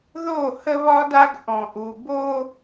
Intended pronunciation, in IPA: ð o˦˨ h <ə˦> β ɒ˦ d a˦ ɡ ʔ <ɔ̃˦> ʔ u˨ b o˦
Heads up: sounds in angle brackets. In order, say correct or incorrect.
correct, incorrect

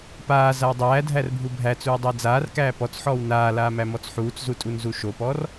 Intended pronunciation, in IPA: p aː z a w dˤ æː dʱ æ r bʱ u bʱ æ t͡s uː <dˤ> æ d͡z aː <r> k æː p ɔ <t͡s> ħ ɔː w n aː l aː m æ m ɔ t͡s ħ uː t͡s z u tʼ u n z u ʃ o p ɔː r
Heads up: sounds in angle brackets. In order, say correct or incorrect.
correct, correct, correct

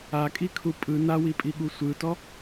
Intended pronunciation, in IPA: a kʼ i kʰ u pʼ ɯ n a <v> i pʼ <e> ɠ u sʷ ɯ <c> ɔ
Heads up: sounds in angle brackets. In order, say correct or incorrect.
incorrect, incorrect, incorrect

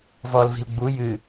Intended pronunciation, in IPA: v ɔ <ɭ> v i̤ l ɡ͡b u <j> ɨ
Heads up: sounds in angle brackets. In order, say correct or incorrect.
incorrect, correct

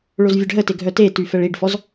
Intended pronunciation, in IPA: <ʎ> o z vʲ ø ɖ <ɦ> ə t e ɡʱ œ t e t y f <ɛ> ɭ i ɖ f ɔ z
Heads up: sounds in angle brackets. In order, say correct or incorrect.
incorrect, correct, correct

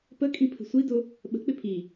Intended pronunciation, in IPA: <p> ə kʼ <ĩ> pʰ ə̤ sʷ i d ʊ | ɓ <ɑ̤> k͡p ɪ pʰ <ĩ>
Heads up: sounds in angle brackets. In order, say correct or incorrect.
correct, correct, incorrect, incorrect

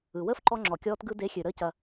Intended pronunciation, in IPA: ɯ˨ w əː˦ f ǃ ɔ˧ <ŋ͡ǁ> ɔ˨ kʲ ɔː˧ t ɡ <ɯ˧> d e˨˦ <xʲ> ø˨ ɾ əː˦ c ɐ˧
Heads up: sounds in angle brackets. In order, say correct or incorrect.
correct, correct, correct

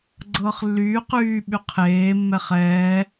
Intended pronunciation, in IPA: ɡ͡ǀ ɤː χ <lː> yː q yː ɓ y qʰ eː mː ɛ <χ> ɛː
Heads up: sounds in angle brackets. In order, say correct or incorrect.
correct, correct

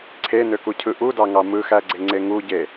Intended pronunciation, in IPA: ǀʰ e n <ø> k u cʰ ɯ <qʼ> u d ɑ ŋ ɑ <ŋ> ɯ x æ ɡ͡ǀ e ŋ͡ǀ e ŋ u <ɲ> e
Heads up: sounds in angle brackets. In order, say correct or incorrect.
correct, incorrect, incorrect, incorrect

